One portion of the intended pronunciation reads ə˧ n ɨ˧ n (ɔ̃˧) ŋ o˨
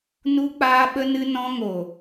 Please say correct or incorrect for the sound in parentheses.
correct